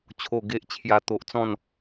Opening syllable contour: low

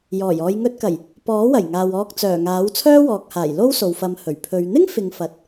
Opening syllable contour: low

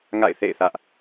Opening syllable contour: falling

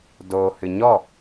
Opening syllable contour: low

